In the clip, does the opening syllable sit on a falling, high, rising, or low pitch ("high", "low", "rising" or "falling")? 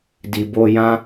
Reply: low